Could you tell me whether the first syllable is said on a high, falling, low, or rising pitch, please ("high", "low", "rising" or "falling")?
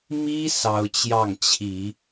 high